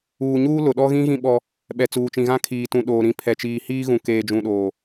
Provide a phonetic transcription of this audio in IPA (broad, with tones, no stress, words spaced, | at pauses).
uː˨ɲuː˦ lʊ˨ɗɔ˦ ɣĩ˦ɣĩ˦ ɓɔ˦ | ɓɛ˨ t͡suː˨t͡ʃĩ˨ɣã˦ kʰiː˨tũ˨ɗoː˨ ɾĩ˨ pʰɛ˨t͡ʃiː˨hiː˦ɣũ˨ keː˨d͡ʒũ˨ɗoː˨